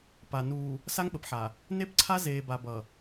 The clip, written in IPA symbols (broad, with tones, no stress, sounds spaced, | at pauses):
p a˨ n uː˨ | s a˦ ŋ ɓ ə˨ p ħ a˨ | n e˦ p ǀʰ a˦ z eː˨ b a˨ b ʌ˨